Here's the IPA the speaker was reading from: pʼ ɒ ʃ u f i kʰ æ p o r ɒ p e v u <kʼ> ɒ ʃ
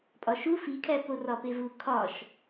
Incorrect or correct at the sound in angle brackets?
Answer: incorrect: kʰ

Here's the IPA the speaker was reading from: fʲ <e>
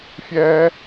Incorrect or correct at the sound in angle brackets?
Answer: incorrect: ɛ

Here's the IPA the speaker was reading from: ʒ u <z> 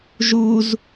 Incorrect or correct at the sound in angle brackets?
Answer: correct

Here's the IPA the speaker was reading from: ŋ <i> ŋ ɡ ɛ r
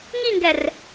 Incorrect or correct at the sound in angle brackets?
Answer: correct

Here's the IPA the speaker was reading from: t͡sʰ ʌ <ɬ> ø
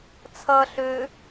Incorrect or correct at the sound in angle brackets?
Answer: correct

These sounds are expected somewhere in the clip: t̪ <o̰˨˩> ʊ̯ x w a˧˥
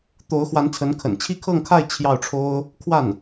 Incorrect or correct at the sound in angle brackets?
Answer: incorrect: o˧˥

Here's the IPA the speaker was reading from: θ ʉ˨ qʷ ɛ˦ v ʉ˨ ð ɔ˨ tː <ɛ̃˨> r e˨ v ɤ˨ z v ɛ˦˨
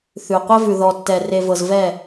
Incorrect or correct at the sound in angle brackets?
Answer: incorrect: ɛ˨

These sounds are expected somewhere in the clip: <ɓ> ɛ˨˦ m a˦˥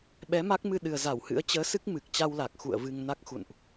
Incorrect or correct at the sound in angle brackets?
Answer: correct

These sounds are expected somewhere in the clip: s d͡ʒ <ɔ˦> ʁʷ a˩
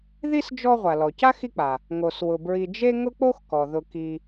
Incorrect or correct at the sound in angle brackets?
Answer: correct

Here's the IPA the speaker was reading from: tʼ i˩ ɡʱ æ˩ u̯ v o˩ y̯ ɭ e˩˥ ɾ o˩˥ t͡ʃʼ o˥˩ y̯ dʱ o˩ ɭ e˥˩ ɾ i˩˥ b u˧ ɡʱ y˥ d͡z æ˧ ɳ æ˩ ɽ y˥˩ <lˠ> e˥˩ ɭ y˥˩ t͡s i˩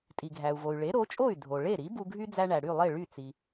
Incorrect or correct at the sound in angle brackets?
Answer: correct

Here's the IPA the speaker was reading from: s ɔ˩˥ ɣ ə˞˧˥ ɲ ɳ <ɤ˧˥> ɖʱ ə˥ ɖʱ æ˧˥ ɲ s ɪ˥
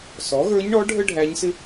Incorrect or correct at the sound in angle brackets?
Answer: incorrect: ɔ˧˥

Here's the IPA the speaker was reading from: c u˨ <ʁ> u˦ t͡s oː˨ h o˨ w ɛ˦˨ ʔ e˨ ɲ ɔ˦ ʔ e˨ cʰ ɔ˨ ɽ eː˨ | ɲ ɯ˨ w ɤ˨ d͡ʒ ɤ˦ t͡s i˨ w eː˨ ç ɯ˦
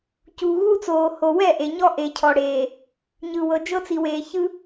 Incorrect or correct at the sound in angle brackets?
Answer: incorrect: ɣ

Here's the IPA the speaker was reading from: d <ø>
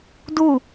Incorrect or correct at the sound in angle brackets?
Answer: incorrect: u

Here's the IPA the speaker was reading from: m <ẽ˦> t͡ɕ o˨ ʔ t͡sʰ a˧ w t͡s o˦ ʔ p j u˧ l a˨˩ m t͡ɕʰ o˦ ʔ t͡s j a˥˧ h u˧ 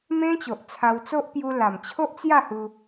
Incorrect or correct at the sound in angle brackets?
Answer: correct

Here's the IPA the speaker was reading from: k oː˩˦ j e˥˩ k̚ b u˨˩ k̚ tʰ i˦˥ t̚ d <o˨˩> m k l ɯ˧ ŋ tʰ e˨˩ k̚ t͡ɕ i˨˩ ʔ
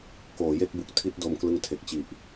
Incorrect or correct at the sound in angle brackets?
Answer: incorrect: o˧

